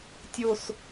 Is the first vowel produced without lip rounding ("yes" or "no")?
no